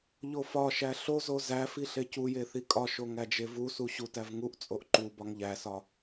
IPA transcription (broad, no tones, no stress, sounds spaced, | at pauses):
ʎ o f ɒ ʃ æ ɬ o z o z æ f i ɬ e c u j e θ i kʼ ɒ ʃ o ŋ æ d͡ʒ e v u s u ɕ u t æ v ŋ u ʔ t͡sʼ o ʔ ǃ u b ɒ ŋ ʎ æ s ɒ